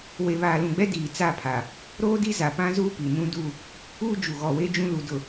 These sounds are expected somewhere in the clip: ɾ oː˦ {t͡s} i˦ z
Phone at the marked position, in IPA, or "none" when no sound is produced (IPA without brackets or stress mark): d